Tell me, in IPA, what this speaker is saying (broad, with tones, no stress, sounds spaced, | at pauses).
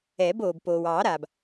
ɛː˨˩˦ b oː˩ b p oː˩ w ɑː˨˩˦ ɾ aː˩ b